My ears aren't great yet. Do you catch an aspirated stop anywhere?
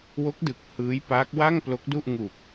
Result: no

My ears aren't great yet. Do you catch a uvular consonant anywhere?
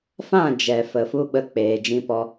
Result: no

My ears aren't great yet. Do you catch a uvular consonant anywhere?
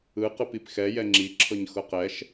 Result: yes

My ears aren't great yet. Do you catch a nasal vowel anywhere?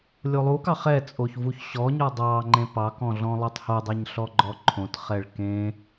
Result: yes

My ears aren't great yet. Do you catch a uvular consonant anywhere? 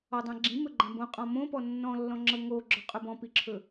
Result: yes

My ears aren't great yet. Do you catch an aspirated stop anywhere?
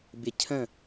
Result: yes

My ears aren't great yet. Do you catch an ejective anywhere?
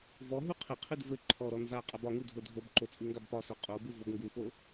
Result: yes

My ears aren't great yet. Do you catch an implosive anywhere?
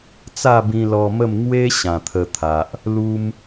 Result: no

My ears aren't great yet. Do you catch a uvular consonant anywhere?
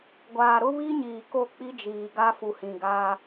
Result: no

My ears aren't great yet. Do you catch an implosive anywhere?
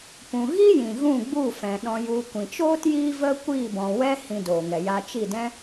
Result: yes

